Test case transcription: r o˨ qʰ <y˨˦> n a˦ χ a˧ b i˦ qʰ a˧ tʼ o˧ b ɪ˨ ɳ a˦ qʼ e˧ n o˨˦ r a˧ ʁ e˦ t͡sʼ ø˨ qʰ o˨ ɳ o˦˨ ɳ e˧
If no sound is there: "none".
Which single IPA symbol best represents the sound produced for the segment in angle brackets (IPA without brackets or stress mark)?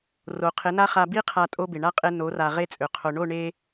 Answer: ɪ˨˦